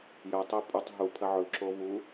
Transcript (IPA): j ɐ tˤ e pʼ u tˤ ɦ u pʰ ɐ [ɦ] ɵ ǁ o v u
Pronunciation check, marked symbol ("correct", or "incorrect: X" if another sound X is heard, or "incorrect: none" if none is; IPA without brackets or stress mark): incorrect: ʕ